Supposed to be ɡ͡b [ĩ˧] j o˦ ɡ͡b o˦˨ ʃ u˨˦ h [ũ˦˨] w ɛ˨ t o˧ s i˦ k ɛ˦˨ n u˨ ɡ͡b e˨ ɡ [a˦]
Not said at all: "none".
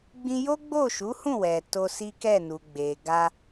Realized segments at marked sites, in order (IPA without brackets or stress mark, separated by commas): ĩ˧, ũ˦˨, a˧